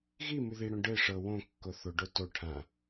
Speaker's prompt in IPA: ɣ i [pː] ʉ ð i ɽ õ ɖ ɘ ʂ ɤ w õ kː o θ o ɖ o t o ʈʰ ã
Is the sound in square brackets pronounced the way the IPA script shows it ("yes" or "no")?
no